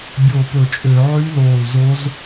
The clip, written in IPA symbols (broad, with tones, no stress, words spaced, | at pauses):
bʲoː˧˩pɵ˧˩˧t͡ʃʼø˧˩˧ ʕy˦˥loː˧˩l zo˦˥z